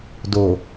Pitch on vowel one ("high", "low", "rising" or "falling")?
low